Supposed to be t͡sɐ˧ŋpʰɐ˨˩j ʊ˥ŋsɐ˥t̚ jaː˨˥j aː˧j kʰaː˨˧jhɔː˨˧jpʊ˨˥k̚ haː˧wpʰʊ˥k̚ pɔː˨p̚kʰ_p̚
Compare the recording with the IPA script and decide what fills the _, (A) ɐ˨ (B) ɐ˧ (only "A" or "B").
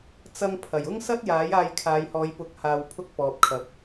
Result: A